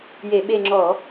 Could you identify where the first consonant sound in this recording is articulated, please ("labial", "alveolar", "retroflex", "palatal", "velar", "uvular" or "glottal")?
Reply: palatal